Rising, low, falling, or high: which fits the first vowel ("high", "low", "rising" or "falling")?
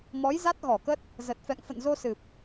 rising